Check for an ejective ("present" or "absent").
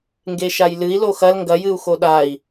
absent